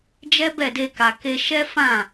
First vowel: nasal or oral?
oral